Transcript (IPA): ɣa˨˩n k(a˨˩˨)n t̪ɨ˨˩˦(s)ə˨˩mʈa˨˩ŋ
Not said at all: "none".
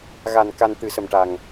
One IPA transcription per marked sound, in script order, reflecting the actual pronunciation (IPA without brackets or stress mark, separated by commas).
a˧, s